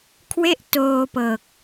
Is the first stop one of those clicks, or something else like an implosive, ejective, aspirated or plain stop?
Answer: aspirated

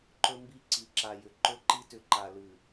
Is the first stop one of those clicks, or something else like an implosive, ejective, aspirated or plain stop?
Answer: click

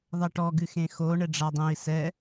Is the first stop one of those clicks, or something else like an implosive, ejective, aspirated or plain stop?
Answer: plain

